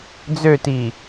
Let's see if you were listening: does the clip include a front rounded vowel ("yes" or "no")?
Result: yes